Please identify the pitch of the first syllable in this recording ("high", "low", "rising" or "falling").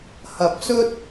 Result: low